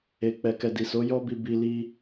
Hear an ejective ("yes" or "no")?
no